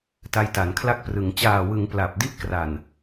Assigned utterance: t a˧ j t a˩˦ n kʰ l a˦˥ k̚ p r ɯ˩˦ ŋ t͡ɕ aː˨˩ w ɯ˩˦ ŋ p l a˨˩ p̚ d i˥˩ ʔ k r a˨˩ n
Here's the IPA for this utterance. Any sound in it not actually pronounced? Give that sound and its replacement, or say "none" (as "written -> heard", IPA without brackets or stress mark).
none